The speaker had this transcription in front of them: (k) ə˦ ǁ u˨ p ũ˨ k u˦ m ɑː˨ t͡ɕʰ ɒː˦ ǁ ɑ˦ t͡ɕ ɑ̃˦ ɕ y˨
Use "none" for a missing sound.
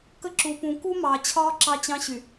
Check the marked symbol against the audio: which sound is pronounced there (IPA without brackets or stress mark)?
k